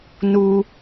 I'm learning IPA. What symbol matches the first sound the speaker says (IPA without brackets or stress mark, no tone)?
n